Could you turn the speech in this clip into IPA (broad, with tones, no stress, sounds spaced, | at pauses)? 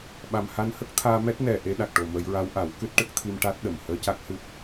ɓ a˨˩ m h a˧ n h ə˦˥ k̚ t̪ʰ aː˧ m ɛ˦˥ t̚ n ɛ˨˩ ʔ e˧˥ ɗ a˨˩ k̚ ʈ o˨˩ m ə˨˩˦ j ɹ a˧˥ w ʔ a˨˩˦ w k ɨ˦˥ t̚ ʈ ə˦˥ k̚ t̪ʰ i˧ m ʈ a˦˥ t̚ ɗ ə˨˩˨ m h əː˧˥ c a˦˥ k̚ h ɨ˦˥ p̚